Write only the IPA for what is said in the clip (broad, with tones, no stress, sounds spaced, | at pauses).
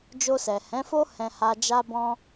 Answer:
d͡ʒ o˧ s ɛ˨ h ɛ̃˨˦ f o˦ h ɛ̃˧ h a˧ d͡ʒ a˦ b ɔ̃˦